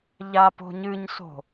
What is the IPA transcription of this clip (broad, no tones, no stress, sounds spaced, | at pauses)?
ʎ a p o̤ ɲ ɨ ɲ s o̤